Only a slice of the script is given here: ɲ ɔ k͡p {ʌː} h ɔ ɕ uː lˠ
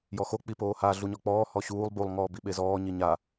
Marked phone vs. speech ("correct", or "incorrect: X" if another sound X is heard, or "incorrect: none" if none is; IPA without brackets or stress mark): incorrect: ɔː